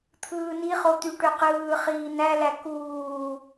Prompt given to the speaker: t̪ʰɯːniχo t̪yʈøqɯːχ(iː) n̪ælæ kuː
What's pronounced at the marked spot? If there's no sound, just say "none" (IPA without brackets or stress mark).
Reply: iː